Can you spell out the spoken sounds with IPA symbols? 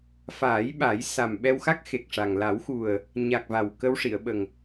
f aː˨˩˦ j ɓ a˨˩˦ j s a˨˩ m ɓ ɛ˧ w x a˦˥ k̚ x e˨˩ k̚ ʂ a˨˩ ŋ l a˨˩˦ w x u˨˩ ə̯ | ɲ a˨˩ k̚ v a˨˩ w k ə˧ w ʂ i˨˩˨ ə̯ ɓ ə˨˩ ŋ

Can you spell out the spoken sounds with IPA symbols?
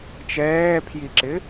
t͡ʃ ɛː pʰ j i ǁ ɪ

